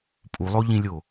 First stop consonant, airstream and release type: ejective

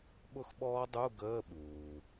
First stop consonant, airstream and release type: implosive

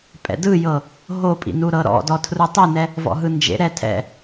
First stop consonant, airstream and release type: ejective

